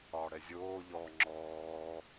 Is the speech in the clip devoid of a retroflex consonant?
no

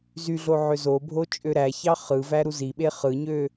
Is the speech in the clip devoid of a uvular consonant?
no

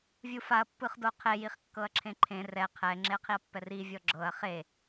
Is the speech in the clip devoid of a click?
no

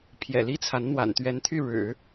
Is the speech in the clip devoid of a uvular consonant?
yes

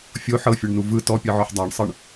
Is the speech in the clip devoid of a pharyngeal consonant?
no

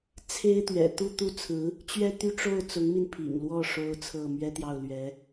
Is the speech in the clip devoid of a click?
yes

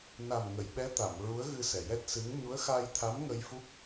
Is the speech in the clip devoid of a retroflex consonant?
yes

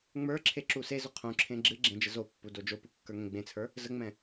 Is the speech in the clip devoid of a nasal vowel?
no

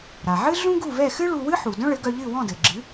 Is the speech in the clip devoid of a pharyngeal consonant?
no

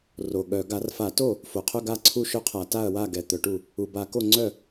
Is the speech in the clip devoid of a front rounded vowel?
no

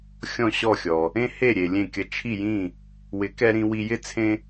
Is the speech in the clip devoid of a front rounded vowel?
yes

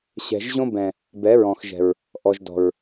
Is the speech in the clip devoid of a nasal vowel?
no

